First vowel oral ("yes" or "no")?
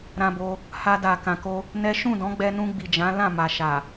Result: no